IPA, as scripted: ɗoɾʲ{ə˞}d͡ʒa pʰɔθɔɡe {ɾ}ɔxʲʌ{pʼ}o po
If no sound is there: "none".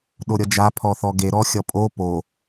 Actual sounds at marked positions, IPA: ʌ, ɾ, pʼ

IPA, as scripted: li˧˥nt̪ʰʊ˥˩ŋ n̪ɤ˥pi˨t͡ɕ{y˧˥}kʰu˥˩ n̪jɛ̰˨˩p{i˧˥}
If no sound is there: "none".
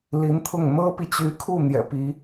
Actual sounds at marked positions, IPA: y˧˥, i˧˥

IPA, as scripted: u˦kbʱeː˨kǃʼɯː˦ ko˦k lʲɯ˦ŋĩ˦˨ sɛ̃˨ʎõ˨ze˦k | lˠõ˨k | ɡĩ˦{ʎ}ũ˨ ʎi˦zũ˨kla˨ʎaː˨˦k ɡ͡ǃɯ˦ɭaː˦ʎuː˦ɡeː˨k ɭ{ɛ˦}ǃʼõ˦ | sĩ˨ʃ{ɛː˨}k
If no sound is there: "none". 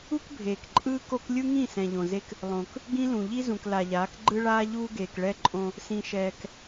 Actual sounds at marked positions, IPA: l, ɛ˦, ɛː˨

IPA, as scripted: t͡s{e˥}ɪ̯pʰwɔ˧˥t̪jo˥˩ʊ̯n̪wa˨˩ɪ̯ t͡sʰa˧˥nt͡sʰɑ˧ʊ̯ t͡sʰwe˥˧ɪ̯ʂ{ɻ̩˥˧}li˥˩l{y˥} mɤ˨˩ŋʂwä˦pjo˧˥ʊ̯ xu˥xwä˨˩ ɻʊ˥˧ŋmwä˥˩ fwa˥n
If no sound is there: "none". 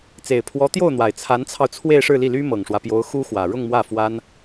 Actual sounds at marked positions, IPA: e˨˩, ɻ̩˥˧, y˥

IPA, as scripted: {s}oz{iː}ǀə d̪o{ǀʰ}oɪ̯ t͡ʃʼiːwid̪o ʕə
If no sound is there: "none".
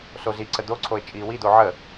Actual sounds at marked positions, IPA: s, i, ǀʰ

